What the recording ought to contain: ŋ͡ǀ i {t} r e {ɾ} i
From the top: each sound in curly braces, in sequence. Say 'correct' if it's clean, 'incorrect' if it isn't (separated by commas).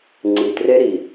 correct, correct